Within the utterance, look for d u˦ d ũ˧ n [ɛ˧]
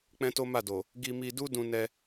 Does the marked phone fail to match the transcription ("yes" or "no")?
no